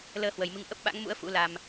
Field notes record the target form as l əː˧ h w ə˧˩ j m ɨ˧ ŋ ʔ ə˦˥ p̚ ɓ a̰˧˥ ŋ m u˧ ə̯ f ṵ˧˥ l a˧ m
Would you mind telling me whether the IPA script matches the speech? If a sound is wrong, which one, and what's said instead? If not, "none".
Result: u˧ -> ṵ˧˥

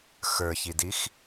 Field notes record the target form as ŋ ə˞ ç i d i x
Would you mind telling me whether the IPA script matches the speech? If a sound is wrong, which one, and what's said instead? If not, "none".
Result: ŋ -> x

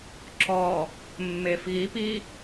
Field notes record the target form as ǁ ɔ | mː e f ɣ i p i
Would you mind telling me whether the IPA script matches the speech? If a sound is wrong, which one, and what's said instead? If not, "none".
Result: none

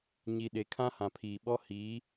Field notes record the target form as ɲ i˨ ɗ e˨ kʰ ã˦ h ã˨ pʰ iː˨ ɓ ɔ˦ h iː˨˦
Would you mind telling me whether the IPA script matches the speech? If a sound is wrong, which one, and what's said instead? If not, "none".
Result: none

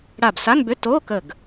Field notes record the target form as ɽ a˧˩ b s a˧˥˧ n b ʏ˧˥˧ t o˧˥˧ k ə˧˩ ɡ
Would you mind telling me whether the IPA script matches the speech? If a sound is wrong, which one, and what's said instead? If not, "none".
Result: none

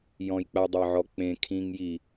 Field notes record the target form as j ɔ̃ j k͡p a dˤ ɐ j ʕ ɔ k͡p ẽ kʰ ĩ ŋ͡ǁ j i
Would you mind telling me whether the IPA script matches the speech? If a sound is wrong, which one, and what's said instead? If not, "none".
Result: ŋ͡ǁ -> ŋ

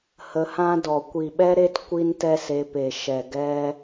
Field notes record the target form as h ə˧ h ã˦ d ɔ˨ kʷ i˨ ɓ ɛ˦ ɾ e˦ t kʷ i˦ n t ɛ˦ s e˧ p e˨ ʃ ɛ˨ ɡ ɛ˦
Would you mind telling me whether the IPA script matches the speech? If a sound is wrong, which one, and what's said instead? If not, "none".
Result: none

